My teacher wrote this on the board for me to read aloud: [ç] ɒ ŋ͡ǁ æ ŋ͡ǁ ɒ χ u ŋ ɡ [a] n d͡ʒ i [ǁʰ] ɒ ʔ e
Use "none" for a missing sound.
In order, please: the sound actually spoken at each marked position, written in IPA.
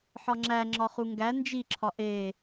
ħ, æ, ǁʰ

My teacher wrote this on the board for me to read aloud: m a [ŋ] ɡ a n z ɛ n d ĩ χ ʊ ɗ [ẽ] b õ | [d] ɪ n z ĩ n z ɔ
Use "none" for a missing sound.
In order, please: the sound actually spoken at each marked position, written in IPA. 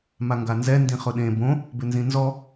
ŋ, ẽ, b

